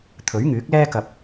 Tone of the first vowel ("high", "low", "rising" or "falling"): rising